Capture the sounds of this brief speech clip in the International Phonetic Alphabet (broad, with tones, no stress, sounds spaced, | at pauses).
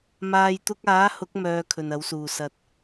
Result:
m aː˨ j t̪ ʊ˧ k̚ aː˨˥ h ʊ˨˥ k̚ m œː˧ kʰ ɵ˨ n ɐ˨˥ w s uː˨ s ɐ˧ t̚